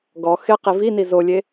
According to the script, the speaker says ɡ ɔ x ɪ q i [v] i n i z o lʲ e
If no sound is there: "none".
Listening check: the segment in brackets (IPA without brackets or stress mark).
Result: v